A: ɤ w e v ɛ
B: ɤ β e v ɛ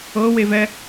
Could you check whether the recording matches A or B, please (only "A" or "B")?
A